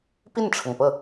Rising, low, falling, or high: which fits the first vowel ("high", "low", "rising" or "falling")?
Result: falling